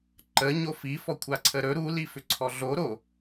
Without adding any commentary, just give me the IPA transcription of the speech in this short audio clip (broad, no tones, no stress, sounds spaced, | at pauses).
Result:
ǃ ə ɲ o f i f ɔ kʷʰ a ǀʰ ə ɾ ɵ ɾ u l i f ʏ ǀʰ ɔ ɮ o ɾ o